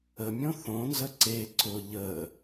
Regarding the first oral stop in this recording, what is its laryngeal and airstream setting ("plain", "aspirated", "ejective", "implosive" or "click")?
click